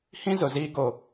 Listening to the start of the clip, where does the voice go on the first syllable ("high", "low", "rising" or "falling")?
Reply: high